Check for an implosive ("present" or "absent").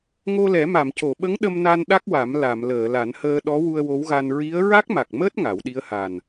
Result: present